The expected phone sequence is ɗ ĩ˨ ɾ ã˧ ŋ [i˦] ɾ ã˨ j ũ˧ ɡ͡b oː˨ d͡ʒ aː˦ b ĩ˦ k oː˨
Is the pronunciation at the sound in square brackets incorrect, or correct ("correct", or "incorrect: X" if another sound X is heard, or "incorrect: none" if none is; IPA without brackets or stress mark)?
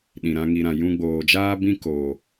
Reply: incorrect: i˨